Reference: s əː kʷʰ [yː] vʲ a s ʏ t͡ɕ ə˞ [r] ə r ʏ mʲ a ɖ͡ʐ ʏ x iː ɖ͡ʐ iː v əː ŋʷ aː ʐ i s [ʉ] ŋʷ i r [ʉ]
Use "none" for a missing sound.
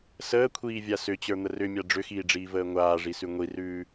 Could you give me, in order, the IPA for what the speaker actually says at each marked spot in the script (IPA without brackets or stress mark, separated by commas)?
iː, n̪, ʉ, ʉː